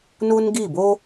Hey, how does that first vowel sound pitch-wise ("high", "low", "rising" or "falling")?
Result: high